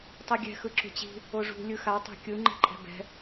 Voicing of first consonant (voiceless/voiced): voiceless